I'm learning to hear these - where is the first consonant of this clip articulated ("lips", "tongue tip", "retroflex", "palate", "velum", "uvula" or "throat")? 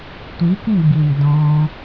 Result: tongue tip